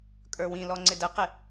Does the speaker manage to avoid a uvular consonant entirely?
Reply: no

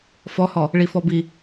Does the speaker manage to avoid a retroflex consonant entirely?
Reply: no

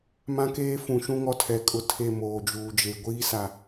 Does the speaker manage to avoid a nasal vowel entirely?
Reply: no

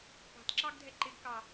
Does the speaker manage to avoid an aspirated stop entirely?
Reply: yes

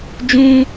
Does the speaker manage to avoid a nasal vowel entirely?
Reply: no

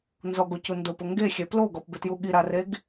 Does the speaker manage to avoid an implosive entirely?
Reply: no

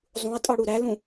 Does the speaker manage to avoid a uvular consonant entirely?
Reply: yes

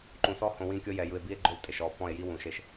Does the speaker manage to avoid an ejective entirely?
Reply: no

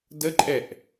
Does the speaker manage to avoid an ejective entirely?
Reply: no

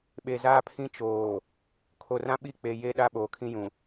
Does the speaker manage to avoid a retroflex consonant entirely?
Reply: yes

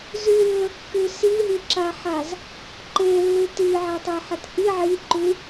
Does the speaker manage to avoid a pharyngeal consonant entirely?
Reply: no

